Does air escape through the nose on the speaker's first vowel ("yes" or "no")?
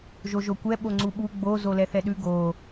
no